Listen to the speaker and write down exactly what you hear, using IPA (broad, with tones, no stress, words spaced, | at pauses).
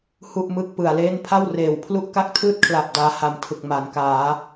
hu˥˩ʔmɯ˥˩k̚ pɯ˩˦a̯leː˥˩n pʰa˥˩wreː˩˦w pʰlu˥˩ʔka˥˩k̚tʰɯː˥˩t̚kʰla˨˩p̚ daː˧ha˨˩m tʰɯ˨˩k̚ ma˩˦nkaː˩˦